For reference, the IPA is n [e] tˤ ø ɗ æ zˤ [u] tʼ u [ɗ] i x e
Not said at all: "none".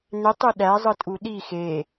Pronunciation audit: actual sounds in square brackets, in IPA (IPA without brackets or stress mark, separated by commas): e, ɯ, ɗ